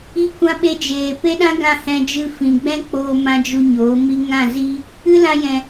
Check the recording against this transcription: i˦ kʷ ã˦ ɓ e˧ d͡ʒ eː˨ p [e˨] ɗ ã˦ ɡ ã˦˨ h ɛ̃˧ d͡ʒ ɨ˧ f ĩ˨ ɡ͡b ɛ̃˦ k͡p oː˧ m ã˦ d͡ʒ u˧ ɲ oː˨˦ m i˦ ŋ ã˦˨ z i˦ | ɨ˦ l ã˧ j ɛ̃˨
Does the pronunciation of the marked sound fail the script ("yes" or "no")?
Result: yes